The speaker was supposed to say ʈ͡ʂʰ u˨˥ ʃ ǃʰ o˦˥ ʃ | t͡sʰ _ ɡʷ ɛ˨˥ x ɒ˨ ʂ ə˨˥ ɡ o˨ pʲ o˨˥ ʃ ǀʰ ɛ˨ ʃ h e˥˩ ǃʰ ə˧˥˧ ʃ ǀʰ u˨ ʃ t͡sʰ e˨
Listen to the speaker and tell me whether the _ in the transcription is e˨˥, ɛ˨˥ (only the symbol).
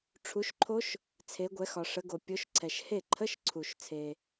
e˨˥